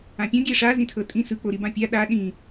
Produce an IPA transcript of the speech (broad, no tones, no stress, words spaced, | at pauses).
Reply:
ãpʲɔ̃ ɡʲɛʂa zĩtʰɤtʼĩ sɯ k͡poɾibãpʲa ɗa ɗĩ